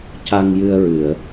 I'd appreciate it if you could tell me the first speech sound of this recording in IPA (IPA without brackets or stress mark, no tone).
c